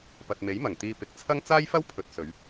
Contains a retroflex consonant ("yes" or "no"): no